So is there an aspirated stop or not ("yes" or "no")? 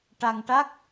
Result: no